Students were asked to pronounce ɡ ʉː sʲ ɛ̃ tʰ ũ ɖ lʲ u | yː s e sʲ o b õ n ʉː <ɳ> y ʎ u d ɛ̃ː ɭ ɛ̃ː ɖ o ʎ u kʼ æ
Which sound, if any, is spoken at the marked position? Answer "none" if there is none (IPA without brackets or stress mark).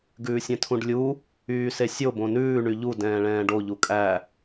ɳ